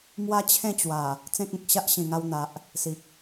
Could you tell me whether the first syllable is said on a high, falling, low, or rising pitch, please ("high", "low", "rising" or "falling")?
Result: high